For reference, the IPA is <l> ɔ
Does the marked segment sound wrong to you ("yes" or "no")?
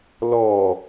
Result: no